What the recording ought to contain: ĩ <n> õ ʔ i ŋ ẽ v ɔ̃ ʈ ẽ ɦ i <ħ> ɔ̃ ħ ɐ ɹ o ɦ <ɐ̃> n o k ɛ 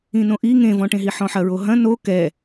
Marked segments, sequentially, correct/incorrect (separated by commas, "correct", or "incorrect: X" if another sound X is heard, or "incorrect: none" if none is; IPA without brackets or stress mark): correct, correct, correct